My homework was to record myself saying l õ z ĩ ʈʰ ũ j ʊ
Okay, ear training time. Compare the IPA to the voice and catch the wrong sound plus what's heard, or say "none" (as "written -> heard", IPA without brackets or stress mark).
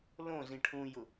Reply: none